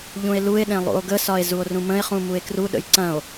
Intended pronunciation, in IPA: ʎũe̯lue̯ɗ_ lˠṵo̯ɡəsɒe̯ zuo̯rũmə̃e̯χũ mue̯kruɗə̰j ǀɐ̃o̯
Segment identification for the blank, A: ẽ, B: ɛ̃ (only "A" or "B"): A